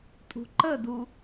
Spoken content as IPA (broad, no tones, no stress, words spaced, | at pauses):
tʼṳǃədu